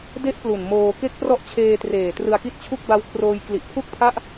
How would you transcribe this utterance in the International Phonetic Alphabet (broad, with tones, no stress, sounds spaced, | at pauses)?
d e˦˥ ʔ p l u˨˩ n m oː˧ k e˦˥ k̚ p r ɔ˦˥ ʔ t͡ɕʰ eː˧ t r eː˨˩ t r ɯ˧ a̯ k i˥˩ t̚ t͡ɕʰ u˥˩ k̚ b a˦˥ w kʰ r oː˧ j k l i˨˩ ʔ pʰ u˥˩ k̚ pʰ a˥˩ ʔ